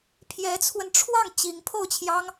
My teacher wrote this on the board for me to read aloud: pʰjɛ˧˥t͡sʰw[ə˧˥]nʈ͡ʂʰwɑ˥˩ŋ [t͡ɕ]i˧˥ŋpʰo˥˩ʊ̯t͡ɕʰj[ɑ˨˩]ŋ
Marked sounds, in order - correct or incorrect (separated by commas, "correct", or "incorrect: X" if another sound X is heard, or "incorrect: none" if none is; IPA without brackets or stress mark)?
incorrect: ə˧, correct, incorrect: ɑ˥